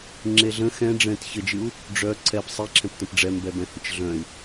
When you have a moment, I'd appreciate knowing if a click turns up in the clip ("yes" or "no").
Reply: yes